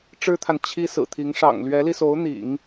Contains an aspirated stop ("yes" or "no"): yes